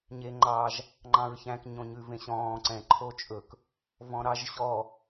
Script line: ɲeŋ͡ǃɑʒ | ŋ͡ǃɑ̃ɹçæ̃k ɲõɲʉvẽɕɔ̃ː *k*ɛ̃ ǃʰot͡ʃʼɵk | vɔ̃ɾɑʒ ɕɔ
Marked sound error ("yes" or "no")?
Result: yes